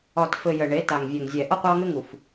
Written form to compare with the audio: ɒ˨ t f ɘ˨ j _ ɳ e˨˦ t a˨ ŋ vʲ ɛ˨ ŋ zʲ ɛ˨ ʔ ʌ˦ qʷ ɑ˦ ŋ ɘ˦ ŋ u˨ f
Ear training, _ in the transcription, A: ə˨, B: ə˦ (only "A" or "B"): A